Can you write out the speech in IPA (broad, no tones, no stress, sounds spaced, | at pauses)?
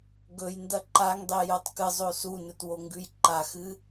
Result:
ɡ ɵ j n d ɐ ǃ a ŋ dˤ e j o tˤ k ɨ zˤ o s u n ɵ t w o ŋ ɡ ʉ j ǃ a x ɨ